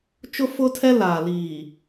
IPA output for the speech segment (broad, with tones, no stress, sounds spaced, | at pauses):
t͡ʃ ʊ˦ f ʊ˦ tʰ ɛ˦ l aː˨ l iː˨